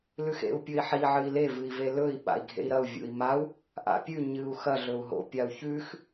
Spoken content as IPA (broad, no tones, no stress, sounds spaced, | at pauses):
l ʉ x ḛ u̯ pʲ ɵ i̯ ħ i ʕ ɨ i̯ l e v ɨ i̯ v e l ɵ i̯ ɓ a̰ i̯ ɡʱ ḛ i̯ ɾ ɐ u̯ vʲ ṵ i̯ m a u̯ | ʔ a̰ pʲ ʉ ɲ ɨ u̯ x ɐ ɮ ɵ u̯ ɦ o̰ pʲ a u̯ ç ʉ x